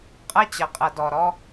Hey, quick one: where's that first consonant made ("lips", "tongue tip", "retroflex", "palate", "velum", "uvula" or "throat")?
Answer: uvula